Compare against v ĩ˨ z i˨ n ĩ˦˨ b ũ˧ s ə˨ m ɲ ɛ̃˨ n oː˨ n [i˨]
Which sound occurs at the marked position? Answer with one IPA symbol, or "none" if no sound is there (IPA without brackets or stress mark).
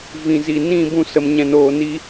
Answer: i˧